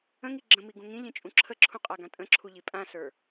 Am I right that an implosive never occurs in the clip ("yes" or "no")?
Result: yes